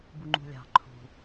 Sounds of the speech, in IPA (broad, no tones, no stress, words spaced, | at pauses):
buŋ͡ǃṳlʲɑ̤ ǃʰṳ